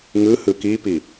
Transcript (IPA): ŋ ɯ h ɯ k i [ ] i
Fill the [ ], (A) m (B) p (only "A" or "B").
B